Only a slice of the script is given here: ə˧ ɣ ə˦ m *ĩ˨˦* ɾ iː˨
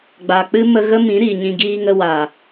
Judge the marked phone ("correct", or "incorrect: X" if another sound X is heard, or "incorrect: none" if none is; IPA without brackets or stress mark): correct